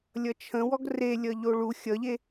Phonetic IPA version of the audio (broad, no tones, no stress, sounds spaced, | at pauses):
lʲ ʌ t͡ʃʰ ə̃ w ɔ ɡ r e lʲ ʌ ʎ o ɭ u xʲ ʌ ʎ e